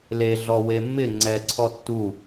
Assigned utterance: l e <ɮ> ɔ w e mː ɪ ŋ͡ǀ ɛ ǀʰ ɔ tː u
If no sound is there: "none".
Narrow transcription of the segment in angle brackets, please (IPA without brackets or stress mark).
ɮ